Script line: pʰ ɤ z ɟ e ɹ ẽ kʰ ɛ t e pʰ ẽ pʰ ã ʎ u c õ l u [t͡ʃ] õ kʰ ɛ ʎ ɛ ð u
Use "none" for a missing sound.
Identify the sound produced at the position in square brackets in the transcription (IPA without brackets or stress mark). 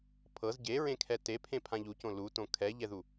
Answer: t